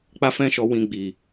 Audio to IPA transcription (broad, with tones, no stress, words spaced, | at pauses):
k͡pa˦fɛ̃˦ʃɔ˧ wĩ˧ɡ͡bi˨